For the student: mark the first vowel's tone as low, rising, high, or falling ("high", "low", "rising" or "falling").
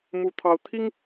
high